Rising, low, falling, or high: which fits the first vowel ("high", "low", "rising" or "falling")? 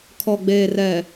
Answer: low